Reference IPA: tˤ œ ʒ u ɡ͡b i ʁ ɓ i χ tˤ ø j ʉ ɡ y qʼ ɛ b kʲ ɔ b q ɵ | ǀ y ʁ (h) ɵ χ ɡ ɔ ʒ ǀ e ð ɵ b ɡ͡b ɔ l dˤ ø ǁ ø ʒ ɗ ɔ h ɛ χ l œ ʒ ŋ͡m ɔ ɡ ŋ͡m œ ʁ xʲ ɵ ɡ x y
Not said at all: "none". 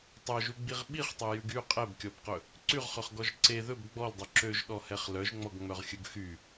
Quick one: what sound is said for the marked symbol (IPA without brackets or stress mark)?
χ